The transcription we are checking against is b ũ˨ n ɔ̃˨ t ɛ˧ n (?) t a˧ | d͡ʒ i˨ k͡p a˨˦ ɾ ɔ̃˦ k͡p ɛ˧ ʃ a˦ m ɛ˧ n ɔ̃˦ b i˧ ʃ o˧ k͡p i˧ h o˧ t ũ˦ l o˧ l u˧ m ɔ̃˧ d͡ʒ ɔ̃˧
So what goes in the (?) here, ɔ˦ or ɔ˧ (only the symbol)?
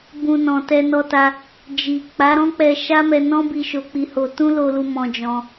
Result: ɔ˧